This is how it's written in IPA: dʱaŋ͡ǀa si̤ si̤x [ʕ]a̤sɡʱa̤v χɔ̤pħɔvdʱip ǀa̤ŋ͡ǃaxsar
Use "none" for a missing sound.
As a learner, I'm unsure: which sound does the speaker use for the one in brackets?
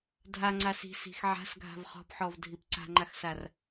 ʕ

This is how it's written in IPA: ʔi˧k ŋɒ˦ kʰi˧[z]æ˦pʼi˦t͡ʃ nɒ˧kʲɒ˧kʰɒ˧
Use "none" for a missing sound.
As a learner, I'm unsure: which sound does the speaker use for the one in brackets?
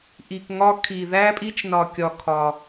ð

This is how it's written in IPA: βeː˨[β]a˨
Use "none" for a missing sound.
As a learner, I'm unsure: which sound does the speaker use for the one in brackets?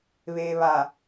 β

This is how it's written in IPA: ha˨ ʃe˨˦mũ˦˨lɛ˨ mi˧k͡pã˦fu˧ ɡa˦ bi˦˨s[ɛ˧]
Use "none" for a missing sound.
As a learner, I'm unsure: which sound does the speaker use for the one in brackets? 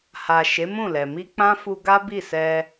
ɛ˧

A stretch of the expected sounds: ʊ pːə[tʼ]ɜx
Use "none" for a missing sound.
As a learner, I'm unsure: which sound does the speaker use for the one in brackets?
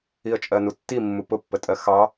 tʼ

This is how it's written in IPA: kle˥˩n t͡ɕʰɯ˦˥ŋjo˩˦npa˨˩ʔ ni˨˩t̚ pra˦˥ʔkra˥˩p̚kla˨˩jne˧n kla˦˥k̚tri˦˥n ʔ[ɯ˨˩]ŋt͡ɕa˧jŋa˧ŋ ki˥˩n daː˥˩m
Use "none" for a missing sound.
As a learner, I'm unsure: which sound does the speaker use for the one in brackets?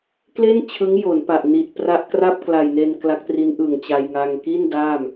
ɯ˨˩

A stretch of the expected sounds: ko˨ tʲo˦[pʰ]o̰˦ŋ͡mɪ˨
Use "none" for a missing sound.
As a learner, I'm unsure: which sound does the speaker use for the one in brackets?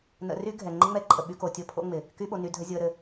pʰ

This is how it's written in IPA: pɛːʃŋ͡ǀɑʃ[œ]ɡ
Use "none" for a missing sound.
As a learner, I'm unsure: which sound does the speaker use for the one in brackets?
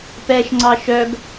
œ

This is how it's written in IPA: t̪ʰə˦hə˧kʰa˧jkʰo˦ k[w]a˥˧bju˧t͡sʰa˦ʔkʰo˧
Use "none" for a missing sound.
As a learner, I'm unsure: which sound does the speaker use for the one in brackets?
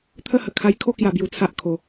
j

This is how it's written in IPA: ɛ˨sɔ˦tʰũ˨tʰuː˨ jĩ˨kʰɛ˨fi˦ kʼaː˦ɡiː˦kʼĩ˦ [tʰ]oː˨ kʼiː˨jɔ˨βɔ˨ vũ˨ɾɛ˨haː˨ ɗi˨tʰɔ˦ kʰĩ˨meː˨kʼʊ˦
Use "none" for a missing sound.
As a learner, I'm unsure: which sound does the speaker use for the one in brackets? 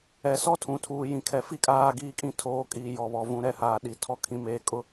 tʰ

